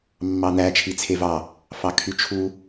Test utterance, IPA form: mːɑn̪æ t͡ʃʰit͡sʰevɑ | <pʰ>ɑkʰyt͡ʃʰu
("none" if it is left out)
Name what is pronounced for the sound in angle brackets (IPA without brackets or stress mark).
f